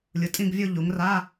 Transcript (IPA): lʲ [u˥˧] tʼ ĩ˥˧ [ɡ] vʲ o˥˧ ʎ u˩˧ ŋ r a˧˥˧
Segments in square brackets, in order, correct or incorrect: incorrect, correct

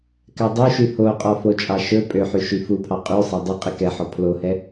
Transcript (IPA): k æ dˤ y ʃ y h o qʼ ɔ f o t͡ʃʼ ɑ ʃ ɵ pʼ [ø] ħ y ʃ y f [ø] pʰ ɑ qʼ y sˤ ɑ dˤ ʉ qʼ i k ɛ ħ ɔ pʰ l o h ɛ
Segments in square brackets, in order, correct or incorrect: correct, incorrect

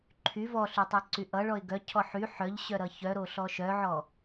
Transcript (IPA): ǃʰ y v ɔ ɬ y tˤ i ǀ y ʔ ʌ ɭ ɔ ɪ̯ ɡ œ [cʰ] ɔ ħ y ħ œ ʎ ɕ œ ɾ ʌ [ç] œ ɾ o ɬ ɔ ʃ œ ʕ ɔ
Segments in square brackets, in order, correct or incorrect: correct, correct

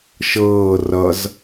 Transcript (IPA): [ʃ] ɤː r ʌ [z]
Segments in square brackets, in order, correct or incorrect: correct, correct

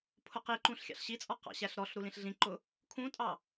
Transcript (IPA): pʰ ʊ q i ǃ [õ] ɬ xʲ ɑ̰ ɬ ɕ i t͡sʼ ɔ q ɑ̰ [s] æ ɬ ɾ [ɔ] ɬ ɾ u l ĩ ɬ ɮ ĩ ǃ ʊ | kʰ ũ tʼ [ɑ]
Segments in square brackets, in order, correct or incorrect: incorrect, incorrect, correct, correct

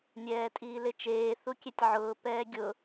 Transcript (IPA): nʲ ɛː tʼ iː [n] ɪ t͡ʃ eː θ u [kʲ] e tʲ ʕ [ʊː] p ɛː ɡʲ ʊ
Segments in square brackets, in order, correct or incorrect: incorrect, correct, correct

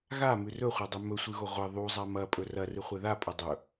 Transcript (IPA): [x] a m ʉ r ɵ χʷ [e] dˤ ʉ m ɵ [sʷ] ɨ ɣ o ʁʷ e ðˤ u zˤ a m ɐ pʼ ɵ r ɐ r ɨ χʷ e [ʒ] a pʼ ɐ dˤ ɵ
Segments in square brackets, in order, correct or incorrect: incorrect, correct, correct, incorrect

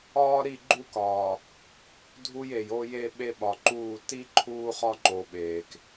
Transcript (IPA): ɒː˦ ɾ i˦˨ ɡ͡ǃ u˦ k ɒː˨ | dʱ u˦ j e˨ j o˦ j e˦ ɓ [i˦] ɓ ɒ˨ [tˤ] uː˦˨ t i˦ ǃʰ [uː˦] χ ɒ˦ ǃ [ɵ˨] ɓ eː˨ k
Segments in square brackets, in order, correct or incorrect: incorrect, incorrect, correct, incorrect

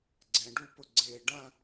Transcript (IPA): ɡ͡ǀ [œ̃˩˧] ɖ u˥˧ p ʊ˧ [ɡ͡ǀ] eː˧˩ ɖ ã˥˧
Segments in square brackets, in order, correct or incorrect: incorrect, correct

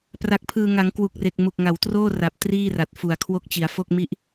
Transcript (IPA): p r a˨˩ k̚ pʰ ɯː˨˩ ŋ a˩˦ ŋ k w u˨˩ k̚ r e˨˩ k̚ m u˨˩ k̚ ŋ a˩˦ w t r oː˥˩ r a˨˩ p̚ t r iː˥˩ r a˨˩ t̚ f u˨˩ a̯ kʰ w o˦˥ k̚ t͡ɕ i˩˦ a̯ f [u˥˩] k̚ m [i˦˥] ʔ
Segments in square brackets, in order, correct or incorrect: incorrect, correct

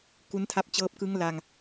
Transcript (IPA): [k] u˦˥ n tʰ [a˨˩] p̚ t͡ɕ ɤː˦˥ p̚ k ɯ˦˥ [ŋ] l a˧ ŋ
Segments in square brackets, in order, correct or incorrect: correct, incorrect, correct

